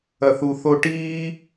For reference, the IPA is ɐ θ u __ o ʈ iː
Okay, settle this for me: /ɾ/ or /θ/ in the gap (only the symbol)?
θ